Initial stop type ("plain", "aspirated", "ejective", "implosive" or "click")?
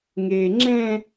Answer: click